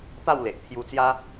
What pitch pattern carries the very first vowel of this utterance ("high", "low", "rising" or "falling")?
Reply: falling